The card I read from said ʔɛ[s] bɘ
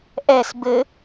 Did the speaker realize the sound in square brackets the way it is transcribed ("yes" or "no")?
yes